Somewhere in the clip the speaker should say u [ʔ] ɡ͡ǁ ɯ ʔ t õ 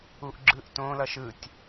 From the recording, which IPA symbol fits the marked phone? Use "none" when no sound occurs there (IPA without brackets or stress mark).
ʔ